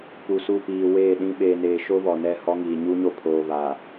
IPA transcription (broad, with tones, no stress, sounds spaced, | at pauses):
p u˨ s u˦˨ p iː˨ w eː˦˨ ɗ ĩ˦ ɓ eː˨ n eː˨ ʃ o˦ β ɔ˨ n ɛ˦˨ h ɔ˦ ŋ iː˨ ɲ u˦ ɲ o˦ pʰ oː˨ β aː˨